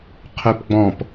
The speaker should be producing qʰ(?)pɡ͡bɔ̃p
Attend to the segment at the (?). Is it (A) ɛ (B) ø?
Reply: B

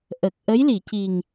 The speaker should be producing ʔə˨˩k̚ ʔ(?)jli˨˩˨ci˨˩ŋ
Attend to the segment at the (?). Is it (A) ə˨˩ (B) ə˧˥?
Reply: B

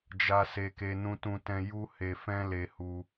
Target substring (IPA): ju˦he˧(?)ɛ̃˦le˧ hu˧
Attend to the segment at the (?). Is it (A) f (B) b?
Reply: A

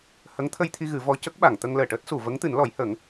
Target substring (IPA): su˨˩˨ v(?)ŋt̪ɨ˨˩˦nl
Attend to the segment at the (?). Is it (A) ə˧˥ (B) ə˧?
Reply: A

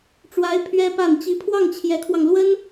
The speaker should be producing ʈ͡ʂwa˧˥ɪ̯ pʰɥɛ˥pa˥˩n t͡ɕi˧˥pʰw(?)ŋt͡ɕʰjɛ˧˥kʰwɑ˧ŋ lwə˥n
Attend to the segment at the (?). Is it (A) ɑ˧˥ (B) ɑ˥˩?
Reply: B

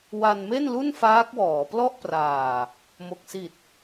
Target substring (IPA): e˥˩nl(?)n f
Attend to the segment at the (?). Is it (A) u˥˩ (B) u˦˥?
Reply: A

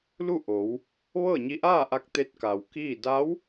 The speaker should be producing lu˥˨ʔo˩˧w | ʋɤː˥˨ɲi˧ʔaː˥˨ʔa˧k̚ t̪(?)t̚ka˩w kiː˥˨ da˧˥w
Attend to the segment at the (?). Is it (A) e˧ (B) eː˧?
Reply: A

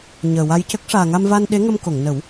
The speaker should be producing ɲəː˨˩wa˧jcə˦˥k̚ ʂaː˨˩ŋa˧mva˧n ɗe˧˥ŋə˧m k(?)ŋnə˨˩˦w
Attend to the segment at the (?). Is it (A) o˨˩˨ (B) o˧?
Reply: A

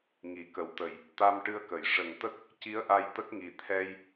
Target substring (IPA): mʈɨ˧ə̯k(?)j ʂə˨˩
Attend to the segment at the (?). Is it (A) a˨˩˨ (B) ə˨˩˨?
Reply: B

